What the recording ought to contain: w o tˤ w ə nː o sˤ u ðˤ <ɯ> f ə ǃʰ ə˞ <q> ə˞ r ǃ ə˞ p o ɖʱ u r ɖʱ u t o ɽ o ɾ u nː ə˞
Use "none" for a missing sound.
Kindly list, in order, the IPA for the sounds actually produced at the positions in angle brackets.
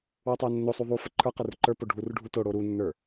u, q

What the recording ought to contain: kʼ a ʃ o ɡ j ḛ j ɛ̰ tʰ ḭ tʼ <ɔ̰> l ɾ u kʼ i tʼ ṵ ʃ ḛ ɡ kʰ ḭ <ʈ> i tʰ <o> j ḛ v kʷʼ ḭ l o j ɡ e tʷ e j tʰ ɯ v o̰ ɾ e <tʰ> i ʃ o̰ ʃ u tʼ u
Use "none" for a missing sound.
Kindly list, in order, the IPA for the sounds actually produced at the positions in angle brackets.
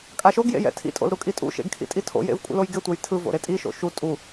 o̰, tʼ, o̰, tʼ

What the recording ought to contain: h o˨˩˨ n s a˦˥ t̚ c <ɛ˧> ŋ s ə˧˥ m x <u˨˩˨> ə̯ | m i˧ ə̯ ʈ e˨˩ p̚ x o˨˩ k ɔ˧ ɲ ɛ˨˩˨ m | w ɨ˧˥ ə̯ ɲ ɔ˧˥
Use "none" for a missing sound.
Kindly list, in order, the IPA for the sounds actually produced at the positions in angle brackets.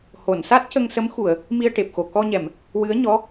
ə˧, u˨˩˨

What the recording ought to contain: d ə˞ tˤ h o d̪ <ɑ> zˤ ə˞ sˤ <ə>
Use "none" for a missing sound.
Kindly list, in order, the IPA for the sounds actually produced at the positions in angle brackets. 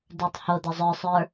ɐ, ə˞

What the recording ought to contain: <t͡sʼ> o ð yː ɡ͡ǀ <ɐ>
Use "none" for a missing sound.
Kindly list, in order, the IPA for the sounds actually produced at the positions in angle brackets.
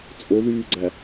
t͡sʼ, æ

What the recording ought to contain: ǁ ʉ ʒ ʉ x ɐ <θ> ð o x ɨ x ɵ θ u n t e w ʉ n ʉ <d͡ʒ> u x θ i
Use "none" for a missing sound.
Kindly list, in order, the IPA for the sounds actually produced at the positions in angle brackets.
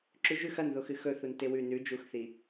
n, d͡ʒ

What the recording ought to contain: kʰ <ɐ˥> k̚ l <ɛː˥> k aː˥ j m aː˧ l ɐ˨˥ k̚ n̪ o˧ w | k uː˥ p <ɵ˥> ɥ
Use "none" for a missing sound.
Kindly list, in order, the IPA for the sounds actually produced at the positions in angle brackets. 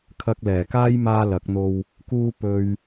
ɐ˥, ɛː˨˩, ɵ˥

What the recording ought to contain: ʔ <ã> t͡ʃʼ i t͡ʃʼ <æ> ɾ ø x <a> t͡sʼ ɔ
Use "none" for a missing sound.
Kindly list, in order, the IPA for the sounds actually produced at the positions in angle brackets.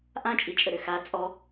ã, ə, a

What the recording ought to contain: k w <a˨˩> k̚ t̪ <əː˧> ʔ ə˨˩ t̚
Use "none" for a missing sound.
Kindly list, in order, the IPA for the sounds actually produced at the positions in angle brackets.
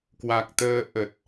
a˨˩, əː˧

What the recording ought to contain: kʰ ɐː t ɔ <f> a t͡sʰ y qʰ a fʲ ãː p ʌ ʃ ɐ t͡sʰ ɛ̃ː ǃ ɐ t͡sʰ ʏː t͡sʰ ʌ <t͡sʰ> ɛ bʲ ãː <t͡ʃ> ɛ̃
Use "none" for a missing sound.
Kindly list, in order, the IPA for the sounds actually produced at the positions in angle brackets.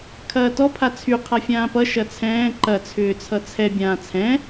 pʰ, t͡sʰ, t͡sʰ

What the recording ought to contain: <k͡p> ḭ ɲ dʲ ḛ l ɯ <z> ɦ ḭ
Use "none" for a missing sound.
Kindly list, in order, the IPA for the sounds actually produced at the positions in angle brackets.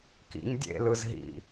k, z

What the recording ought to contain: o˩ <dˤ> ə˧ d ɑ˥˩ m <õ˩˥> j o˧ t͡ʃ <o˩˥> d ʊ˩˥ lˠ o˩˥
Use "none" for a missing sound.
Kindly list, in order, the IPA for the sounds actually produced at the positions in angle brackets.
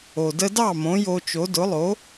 d, õ˩˥, o˩˥

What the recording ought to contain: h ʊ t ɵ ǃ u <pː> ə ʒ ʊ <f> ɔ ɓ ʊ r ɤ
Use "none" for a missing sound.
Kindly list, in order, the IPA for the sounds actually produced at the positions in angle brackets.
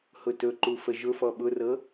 f, f

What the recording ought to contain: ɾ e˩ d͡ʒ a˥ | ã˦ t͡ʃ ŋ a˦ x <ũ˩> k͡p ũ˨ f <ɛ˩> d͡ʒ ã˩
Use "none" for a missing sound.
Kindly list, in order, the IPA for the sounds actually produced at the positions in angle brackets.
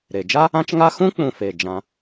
ũ˥, e˩

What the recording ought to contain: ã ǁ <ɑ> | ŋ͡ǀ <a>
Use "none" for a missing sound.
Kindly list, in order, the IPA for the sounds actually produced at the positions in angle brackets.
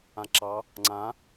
ɑ, ã

